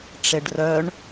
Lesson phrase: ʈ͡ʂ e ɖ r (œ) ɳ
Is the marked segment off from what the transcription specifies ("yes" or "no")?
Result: no